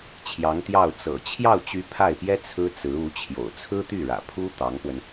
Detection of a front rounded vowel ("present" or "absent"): present